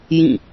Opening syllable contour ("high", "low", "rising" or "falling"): falling